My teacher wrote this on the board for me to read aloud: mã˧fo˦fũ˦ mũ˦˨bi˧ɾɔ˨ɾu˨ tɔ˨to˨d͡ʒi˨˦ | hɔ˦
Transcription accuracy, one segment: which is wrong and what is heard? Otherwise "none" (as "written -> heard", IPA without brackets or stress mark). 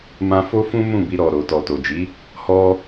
u˨ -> o˨